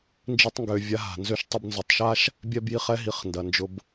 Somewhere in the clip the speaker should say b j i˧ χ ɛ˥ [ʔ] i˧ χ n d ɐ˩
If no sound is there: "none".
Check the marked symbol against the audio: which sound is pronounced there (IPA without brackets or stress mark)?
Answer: ɦ